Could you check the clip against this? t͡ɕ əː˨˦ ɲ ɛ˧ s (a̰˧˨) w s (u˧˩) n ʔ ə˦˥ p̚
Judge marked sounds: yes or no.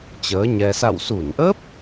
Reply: yes, yes

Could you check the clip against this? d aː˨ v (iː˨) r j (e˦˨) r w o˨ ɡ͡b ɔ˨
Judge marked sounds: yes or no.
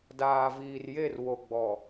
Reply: yes, yes

